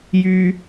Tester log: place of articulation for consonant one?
palatal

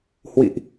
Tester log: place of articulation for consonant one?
glottal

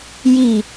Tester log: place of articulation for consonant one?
palatal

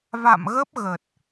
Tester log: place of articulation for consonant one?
labial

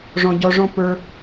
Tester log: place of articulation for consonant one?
retroflex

